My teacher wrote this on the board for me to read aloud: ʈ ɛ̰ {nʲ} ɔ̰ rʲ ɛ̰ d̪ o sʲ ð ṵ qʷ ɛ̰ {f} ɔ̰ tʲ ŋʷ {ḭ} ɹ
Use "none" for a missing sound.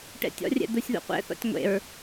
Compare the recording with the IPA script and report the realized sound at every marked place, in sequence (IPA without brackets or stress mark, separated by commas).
tʲ, θ, ḛ